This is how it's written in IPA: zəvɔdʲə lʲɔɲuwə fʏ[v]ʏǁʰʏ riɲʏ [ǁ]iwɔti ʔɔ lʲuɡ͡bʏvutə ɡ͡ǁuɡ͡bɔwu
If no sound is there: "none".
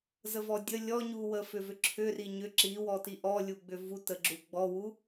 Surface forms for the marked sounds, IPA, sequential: v, ǁ

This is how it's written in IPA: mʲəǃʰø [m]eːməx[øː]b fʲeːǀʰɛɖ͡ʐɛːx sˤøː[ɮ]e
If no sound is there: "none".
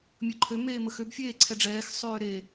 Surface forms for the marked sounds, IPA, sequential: m, ø, ɾ

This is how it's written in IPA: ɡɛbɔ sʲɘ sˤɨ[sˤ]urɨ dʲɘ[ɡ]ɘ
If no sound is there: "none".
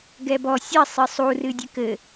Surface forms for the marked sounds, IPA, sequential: sˤ, k

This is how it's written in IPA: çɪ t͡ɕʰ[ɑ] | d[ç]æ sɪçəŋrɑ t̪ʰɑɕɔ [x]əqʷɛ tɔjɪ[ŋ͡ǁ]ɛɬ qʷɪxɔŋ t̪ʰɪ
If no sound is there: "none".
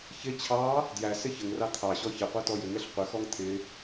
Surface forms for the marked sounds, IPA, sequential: ɑ, j, ç, ŋ

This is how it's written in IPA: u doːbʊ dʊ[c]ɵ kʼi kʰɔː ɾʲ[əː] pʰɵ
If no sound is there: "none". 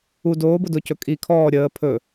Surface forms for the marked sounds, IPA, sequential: c, əː

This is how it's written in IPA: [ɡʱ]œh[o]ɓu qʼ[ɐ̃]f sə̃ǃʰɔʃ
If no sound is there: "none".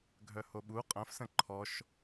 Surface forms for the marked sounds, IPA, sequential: ɡʱ, o, ɐ̃

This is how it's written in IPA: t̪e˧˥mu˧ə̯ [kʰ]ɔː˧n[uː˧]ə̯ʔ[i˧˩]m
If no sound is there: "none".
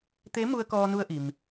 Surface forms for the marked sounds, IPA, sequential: k, u˧, i˩

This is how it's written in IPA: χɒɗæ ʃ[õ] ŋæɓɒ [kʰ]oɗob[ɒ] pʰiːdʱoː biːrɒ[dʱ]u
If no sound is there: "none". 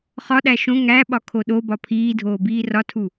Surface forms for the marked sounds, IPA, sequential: õ, kʰ, ɒ, tʰ

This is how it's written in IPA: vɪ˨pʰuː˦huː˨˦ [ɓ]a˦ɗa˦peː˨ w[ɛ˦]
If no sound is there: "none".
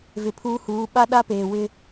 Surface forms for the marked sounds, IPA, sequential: ɓ, ɪ˦

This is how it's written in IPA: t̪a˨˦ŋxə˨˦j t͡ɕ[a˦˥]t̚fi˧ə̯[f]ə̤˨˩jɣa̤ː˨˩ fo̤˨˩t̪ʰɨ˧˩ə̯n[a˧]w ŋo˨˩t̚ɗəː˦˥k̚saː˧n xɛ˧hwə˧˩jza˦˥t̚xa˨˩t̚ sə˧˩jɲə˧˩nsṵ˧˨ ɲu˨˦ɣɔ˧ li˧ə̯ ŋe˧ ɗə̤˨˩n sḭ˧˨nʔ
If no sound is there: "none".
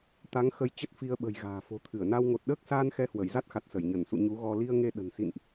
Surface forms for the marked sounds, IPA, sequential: ə˦˥, ɓ, a˧

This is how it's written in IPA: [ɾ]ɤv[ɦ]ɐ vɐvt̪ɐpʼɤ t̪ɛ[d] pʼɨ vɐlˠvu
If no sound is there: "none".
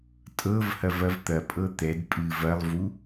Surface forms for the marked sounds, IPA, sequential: tʼ, h, d

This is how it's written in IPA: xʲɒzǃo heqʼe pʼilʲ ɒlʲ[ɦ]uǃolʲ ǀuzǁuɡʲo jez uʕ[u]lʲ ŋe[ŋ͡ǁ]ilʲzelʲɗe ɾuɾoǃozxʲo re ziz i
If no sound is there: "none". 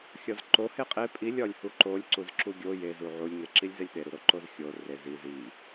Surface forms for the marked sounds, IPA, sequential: h, u, ǁ

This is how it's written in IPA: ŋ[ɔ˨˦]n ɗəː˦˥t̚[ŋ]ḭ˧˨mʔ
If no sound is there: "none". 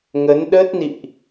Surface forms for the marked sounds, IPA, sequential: ə˨˦, n

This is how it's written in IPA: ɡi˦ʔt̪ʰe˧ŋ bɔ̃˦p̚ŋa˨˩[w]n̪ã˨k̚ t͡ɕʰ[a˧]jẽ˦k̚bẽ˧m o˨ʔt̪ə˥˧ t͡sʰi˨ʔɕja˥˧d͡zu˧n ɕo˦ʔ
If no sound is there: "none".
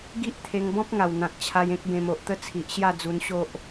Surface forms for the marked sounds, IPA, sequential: w, a˧

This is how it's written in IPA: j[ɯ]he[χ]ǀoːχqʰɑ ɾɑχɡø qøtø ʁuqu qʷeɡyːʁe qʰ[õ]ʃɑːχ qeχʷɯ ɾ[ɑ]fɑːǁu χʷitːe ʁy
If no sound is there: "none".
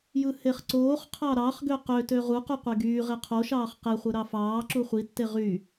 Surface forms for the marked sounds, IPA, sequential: ɯ, χ, o, ɑ

